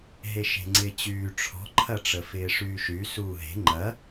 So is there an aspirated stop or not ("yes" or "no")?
yes